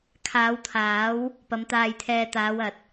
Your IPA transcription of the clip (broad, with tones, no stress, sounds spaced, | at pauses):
kʰ aː˨˧ w t̪ʰ aː˨˥ w | p ɐ˨˧ m t̪ aː˧ j t̪ʰ ɛː˧ t̪ aː˨˧ w ɐ˨ t̚